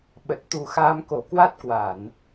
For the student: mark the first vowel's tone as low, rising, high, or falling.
low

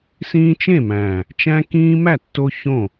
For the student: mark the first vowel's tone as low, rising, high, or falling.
high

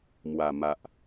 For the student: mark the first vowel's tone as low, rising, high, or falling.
low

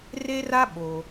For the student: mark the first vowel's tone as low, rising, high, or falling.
high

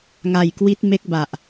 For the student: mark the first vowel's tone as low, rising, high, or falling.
low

